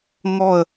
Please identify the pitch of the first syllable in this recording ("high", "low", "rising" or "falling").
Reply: falling